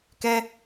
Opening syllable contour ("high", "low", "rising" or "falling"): high